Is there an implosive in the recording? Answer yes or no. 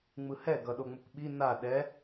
yes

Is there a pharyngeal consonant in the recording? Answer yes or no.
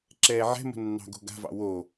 yes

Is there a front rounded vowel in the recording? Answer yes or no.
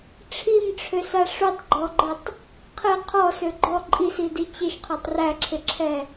yes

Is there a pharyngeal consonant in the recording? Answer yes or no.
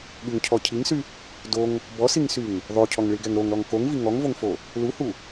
no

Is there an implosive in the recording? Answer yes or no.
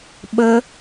yes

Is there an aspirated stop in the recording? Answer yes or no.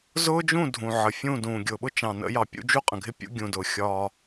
no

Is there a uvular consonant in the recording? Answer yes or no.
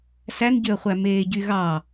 yes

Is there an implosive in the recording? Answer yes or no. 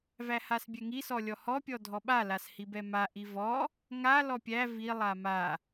yes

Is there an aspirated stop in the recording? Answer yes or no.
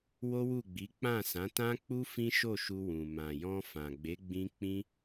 no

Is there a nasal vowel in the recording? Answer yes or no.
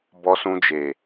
yes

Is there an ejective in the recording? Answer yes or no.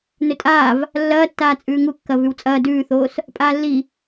yes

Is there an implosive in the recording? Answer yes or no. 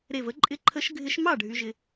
no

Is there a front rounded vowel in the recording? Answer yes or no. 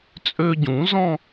yes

